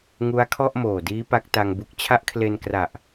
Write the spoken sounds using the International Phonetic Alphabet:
ŋu˦˥a̯kʰɔ˥˩ʔmoː˨˩diː˦˥ pa˦˥k̚ta˧ŋbu˦˥k̚ t͡ɕʰa˦˥ʔkʰle˧n kra˨˩ʔ

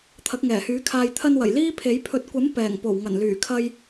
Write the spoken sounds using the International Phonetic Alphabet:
t̪ʰɐ˨˥k̚ŋɛː˨˩hyː˨˥kʰaː˧j t̪ʰɐ˧nwɐ˨˩j liː˥pʰe˨˥j pʰɵ˨t̚kʷɐ˨˥m pɛː˨˩ŋ po˨˩wŋɐ˨˩nlyː˨˩ kʰɐ˧j

